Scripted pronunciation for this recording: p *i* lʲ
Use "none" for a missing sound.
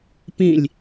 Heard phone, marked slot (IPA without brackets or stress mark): ĩ